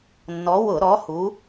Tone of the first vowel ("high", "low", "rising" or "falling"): rising